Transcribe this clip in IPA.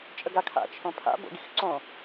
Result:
t͡ʃʼ ə ɡ a kʰ a̰ t͡ʃʰ õ pʰ a̰ b o̰ ɡ i x ǀ õ

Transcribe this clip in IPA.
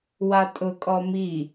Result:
w a tʼ ʊ kʼ ɔ m i

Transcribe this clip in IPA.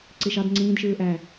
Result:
ǀ i ʃ ɑ d ŋ͡ǀ ĩː d ʃ ɯː ʔ æ

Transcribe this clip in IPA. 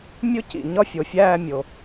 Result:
mʲ o˥ c ḭ˩ ɲ ɒ˥ fʲ o˩ fʲ æː˥˧ mʲ o˩

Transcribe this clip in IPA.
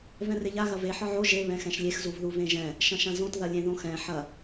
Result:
v ɛ̃ r e ʎ a ɣ ɐ v e ħ ɒ ʕ o ʒ e β ɛ̃ x ɛ̃ ʃ lʲ e x z u v ð u v ẽ ʒ ɛ̃ | ʃ ɐ̃ ʃ ɐ̃ z õ t ð ɐ lʲ ẽ ð õ x ɛ̃ ħ ɐ

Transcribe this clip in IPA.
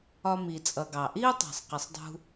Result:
ɒ˨ m i˩ t͡sʼ ʌ˩ ɡ ɑ˩ ʔ i˦ ʊ̯ tˤ ɑ̤˩ sˤ q ɪ˩ sˤ dˤ ṳ˨

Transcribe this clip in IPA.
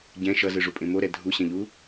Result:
ɟ ɛ̃ ʃ ʌ z ɯ ʐ u pʼ ẽ m o ɾ ɛ dʱ u ɕ ɛ̃ ʎ u

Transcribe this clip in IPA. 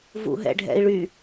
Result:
v ṵ ɦ ɛ̰ ɖʱ ɛ̰ i̯ ɭ y

